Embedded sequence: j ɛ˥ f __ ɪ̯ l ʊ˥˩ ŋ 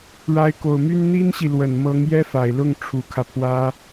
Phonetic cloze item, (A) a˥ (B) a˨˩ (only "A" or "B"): B